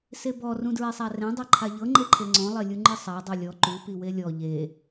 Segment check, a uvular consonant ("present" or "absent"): absent